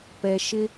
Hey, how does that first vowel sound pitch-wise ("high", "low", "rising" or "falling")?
low